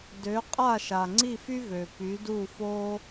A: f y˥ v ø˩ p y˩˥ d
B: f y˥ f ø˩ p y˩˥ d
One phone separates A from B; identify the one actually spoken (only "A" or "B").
A